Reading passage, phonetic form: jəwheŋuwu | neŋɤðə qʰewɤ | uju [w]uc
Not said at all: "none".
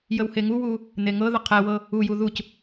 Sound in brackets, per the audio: ð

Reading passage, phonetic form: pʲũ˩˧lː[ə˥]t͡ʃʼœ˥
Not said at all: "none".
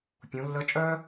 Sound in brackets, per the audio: ə˧˥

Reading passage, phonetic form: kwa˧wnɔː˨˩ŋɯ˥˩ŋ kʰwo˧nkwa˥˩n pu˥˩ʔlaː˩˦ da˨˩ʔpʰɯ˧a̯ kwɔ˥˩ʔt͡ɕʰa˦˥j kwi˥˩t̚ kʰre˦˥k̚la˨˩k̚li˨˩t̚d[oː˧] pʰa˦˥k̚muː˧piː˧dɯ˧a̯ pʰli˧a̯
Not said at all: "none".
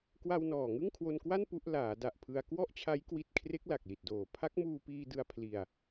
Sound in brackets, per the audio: oː˨˩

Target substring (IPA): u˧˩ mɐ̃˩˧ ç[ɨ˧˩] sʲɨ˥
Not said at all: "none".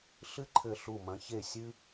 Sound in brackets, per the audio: e˧˩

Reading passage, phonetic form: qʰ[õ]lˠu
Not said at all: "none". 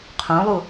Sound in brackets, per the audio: õ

